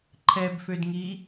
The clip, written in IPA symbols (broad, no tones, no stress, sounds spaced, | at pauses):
ǃʰ ɛ b f ø d ŋ iː